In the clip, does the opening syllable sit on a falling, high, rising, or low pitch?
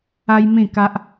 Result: high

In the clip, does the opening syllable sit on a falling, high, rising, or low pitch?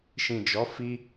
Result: low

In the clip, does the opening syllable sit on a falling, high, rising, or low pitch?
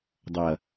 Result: low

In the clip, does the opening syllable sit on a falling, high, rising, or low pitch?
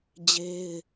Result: high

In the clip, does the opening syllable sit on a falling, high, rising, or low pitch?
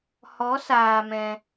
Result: rising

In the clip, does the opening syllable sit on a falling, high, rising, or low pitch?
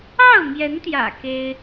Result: falling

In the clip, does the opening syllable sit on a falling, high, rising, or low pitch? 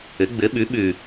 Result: rising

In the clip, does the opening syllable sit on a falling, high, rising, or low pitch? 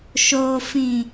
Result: low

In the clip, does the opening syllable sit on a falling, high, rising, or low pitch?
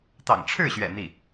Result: low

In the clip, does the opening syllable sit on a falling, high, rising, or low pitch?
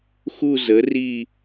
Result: falling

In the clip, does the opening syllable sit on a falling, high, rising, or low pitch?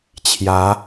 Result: rising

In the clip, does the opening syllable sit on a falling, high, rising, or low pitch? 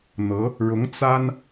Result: rising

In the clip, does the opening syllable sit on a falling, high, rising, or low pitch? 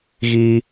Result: low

